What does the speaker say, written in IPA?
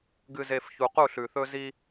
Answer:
ɡɨ˨ze˨f çu˨qu˦˨ɬʉ˨θɵ˦ zi˦

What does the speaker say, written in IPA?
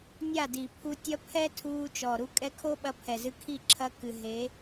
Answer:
nʲa˦˨di˨pʰu˧ tʲɐ˧ pʰɛ˦ tʰuː˧t͡ʃɔ˨ɾu˧ kʼɛ˧kʰo˦ɓɐ˧ pʰɛ˨zɨ˧kʰi˦˨ ǁʰɐ˧kɨ˨ ɦe˨˦

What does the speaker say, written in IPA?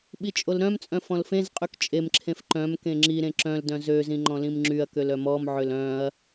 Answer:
ɓit͡ʃʼolɾœ̃mt͡sʼœ̃ fɔ̃lfẽzqʼyk t͡ʃʼemǁʰẽf ǃœ̃m kẽŋ͡ǁiɾẽ ǁœ̃ldœ̃ zøzĩ ŋ͡ǃɔ̃lĩmŋ͡ǁyɐ̯køl œmɔmʕøl œ̃ɐ̯

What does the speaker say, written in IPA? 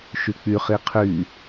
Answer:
ʃyk͡py χiqʰy

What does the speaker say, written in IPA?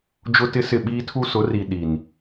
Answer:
d͡ʒʊ˦tɪ˦sɪ˦˨ ɓiː˦tʰu˦sʊ˨˦ri˨ ɗi˨n

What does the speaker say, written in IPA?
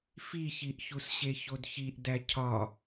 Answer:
fiçiʔçusɕe çodçiʔ dæcʰɒ

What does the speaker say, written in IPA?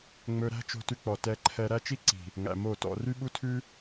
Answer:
ŋ͡mɵ˧ɾæ̤˦ t͡ʃo̤˧tʉ˧k͡pɔ˨ tɛ˧ǃʰɛ˧ ɾæ˦ t͡ʃi˦ǀi̤˨ | ŋæ̰˨mo˦˨tɔ̰˧ ry˦ɓu˦tʰʉ˦

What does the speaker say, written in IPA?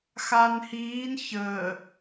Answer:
xan hiːn çəː

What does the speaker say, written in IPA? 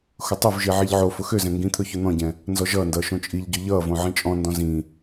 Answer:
xʊtˤɵvʒi ʕiʎʕofʊ xøzɛ̃ ŋɡĩt̪ʰɵ çɵn̪ɔ̃ɟɛ̃ | nzɔʒʌːndʌː ʃõt͡ʃʼiʎɟø ʎʌːvõ ʕĩt͡ʃʼɔ̃ndɔ̃ zĩ

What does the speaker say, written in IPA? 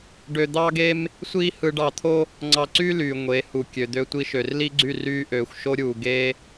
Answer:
ɖø˧d̪ɑː˦ɡe˦m | sʷiː˦hɯ˧ɖɑ˧t̪ʰo˦ | ŋ͡ǀɑ˧ǀyː˦lyː˨ ŋʷe˨˦ hu˨kʲø˨d̪ø˧ tʷi˧ʃø˨rli˦ɡ͡ǀy˦˨ ryː˧ʔøː˨xʷʃo˧ɾʲuː˨ ɡe˦

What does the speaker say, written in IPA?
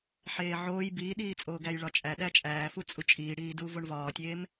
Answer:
ħeːʕoːj biːɗiːt͡sʼoːɡæj ɭɒt͡ʃʼæ ɗæt͡ʃʼæːfu t͡sʼut͡ʃʼiːɽiː duːvoɳvɒːtʲeːm

